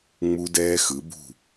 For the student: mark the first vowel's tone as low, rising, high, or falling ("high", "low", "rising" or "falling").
high